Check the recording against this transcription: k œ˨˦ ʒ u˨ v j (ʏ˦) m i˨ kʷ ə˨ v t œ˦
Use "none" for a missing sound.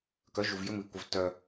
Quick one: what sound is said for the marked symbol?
ʏ˦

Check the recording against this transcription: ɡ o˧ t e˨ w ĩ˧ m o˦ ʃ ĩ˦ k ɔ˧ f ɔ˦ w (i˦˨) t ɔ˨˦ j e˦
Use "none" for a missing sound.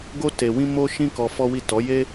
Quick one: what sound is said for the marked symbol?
i˦˨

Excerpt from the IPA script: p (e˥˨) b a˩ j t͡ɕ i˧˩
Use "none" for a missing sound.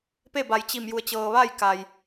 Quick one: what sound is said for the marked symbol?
e˥˨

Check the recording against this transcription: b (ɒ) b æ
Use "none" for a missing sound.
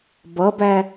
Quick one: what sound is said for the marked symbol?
ʌ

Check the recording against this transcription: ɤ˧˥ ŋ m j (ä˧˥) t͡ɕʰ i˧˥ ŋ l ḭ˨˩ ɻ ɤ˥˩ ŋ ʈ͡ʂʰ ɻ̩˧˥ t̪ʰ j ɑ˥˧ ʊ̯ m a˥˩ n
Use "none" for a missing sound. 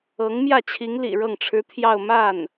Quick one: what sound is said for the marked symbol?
ä˥˩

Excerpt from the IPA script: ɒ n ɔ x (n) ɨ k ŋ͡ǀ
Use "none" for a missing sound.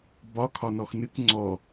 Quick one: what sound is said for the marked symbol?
n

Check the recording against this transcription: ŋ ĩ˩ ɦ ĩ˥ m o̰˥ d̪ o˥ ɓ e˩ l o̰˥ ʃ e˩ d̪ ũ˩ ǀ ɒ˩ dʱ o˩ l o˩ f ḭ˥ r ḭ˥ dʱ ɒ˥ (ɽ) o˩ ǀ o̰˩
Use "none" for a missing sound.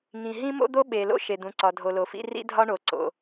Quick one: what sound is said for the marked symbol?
ɳ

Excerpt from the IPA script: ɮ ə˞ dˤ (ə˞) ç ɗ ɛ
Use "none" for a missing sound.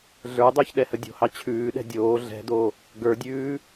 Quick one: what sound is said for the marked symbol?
ə˞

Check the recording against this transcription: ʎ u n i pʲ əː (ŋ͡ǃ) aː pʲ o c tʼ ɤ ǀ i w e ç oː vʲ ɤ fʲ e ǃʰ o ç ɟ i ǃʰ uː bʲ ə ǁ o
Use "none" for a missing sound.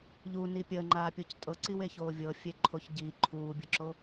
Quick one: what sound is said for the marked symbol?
ŋ͡ǃ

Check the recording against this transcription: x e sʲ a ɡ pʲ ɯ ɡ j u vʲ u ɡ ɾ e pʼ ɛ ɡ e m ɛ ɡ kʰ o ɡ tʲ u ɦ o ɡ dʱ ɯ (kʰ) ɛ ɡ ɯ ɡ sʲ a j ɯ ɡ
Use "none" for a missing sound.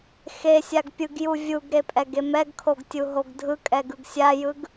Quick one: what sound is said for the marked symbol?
kʼ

